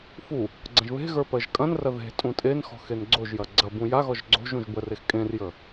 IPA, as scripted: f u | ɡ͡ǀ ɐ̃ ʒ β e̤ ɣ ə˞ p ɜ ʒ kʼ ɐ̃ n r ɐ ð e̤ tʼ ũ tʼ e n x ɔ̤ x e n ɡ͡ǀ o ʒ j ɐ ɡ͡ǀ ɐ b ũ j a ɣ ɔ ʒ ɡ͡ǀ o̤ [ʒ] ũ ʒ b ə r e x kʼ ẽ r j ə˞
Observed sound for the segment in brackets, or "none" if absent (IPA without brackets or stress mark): ʒ